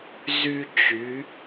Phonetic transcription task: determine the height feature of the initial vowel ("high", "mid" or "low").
high